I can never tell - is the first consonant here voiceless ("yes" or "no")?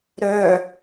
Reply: no